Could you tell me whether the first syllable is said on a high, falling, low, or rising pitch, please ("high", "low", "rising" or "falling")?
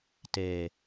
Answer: low